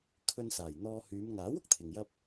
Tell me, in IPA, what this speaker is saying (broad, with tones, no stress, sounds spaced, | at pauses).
kʰ ɵ˧ n s aː˨˩ j n̪ ɔː˧ h yː˨˧ m ŋ aː˨˥ w ʊ˨ k̚ t̪ʰ ɪ˨ ŋ j ɐ˥ p̚